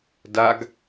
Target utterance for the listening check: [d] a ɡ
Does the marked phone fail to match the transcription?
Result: no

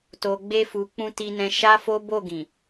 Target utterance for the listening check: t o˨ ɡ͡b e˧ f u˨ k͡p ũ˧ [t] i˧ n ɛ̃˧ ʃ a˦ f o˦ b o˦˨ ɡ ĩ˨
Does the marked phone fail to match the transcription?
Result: no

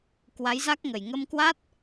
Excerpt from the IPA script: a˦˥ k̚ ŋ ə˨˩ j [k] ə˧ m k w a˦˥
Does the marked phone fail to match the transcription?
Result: yes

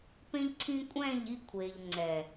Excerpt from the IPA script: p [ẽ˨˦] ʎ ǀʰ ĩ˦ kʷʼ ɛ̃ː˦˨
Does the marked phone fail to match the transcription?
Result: yes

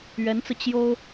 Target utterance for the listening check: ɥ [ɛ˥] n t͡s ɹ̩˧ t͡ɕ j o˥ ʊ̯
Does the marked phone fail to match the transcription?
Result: yes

